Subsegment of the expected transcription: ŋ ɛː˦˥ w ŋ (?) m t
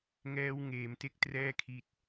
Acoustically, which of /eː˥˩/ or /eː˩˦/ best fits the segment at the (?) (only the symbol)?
eː˩˦